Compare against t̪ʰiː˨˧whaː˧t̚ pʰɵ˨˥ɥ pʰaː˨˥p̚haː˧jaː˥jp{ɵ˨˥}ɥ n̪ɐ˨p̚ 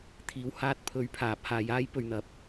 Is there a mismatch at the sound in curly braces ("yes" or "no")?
yes